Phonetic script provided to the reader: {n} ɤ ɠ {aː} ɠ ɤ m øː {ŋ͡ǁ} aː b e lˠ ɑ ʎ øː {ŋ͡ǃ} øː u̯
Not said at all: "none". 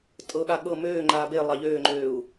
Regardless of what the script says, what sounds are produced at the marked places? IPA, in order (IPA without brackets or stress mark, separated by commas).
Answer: tʼ, a, ŋ͡ǃ, ŋ͡ǃ